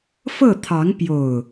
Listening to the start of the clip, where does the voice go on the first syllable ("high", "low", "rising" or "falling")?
falling